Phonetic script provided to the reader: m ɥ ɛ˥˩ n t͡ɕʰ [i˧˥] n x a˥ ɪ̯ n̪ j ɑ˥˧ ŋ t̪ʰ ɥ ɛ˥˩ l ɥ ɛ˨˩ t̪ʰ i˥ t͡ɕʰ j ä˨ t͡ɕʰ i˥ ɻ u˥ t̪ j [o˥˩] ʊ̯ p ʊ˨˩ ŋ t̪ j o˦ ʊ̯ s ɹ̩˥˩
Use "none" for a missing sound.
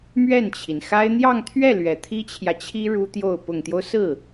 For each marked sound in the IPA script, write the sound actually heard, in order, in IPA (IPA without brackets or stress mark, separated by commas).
i˩, o˥˩